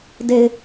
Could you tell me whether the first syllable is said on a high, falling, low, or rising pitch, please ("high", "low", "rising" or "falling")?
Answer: low